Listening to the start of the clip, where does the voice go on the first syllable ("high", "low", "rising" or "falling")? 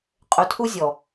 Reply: low